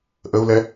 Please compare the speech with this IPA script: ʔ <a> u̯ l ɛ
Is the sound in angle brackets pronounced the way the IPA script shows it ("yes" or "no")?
no